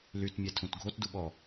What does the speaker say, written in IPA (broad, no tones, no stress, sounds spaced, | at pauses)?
l y t mʲ ɛ tʰ ũ t ɡʱ o t d u ɓ ɔ